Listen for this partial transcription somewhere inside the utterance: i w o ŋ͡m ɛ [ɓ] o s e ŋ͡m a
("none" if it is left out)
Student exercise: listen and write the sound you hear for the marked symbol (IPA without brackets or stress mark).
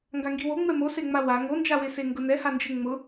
m